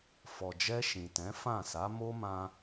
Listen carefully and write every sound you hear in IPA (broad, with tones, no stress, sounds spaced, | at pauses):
f ɔ˨ d͡ʒ ɛ˧ ʃ ĩ˨ t ɛ̃˨˦ f ã˦˨ s a˨˦ m o˦ m ã˧